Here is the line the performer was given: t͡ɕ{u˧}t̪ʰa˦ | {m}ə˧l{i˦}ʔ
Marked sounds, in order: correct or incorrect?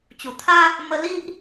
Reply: incorrect, correct, correct

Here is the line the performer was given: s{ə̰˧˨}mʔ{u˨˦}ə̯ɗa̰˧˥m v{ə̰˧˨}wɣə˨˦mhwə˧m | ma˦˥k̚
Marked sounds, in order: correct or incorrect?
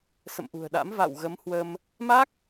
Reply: correct, incorrect, incorrect

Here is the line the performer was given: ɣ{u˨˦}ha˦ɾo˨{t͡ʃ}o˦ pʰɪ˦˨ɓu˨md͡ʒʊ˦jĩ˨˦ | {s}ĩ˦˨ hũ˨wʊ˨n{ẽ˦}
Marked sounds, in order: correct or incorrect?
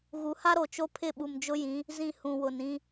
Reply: correct, correct, incorrect, incorrect

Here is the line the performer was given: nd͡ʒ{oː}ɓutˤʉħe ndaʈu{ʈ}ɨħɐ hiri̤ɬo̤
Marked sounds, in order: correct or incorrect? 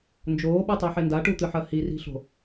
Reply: correct, incorrect

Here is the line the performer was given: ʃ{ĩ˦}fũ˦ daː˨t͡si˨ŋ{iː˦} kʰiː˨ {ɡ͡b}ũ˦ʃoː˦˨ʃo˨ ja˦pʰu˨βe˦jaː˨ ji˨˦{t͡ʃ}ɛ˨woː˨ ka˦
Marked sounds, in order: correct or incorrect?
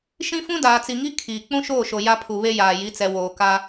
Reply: correct, incorrect, incorrect, incorrect

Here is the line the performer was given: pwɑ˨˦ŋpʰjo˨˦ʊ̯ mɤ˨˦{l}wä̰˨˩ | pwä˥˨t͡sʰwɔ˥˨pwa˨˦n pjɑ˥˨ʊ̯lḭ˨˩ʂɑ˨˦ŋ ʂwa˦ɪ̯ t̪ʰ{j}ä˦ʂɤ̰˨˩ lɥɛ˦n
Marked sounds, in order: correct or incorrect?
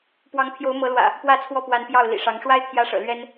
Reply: correct, correct

